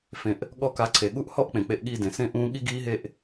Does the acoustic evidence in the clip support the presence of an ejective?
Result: no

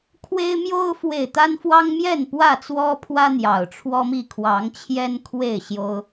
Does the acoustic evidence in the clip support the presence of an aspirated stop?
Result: yes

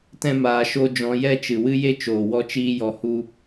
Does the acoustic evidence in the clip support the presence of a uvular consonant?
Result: no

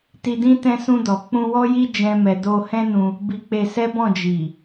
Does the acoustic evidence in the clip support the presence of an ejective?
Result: no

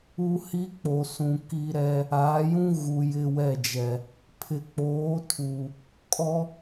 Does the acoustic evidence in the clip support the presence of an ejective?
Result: yes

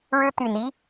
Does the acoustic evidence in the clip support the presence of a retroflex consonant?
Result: yes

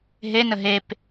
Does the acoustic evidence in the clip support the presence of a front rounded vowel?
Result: no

